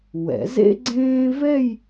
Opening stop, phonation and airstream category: click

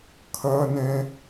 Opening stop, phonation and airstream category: aspirated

